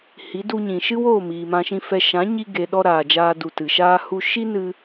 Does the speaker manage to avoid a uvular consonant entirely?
yes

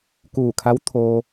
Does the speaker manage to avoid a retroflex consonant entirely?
yes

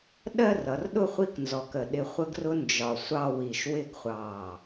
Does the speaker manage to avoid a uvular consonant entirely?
no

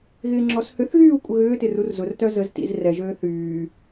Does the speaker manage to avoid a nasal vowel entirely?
yes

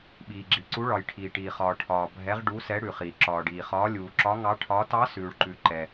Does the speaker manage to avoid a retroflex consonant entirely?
no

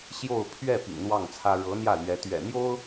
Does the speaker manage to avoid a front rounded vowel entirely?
yes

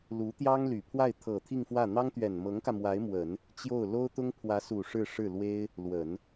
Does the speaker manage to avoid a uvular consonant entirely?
yes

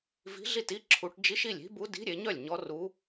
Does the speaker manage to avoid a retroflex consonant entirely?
no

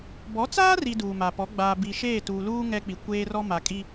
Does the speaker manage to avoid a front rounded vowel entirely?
yes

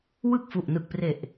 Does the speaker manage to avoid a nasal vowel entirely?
yes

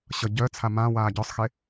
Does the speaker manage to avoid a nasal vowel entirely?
no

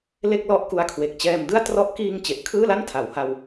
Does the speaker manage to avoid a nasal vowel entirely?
yes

